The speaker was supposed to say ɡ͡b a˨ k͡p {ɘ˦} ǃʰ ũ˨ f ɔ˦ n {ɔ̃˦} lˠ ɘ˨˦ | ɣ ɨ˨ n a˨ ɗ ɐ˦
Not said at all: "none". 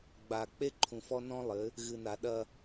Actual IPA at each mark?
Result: e˦, ɔ̃˦

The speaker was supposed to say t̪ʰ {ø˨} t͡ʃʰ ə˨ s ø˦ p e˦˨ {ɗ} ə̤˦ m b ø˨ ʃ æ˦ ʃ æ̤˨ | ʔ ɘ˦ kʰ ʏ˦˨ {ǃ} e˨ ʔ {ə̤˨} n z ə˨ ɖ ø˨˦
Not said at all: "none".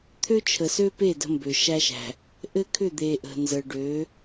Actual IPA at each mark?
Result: ø˦, d, d̪, ə̤˨

